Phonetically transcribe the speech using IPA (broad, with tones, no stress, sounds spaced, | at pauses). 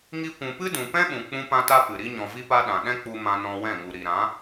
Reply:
ŋ i˦ kʷ ũ˧ p ɨ˦ d ũ˨ p ɛ̃˦ ɓ ũ˨ k͡p ũ˧ p ã˧ t a˧ p ɨ˨ ɾ i˧ ɲ ɔ̃˨ v i˧ p a˧ ɗ ã˨ ɗ ɛ̃˦ k͡p u˧ m ã˧ n ɔ̃˧ w ɛ̃˦˨ ŋ u˨ ɾ i˨ ɾ ã˨˦